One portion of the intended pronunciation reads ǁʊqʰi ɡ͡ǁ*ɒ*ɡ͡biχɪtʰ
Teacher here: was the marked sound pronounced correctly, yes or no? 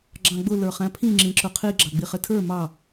no